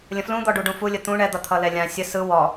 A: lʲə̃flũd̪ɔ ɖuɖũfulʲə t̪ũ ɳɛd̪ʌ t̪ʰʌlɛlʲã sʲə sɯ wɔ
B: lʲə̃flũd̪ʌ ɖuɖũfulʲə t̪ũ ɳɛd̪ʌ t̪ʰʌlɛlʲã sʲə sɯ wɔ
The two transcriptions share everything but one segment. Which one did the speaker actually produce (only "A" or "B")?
A